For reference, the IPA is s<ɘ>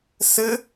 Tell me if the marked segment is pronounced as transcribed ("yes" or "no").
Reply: yes